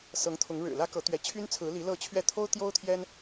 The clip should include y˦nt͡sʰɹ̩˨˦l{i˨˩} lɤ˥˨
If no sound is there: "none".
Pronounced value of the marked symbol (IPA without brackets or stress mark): i˨˦